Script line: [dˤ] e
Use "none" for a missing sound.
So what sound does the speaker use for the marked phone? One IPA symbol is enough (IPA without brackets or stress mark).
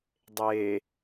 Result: dˤ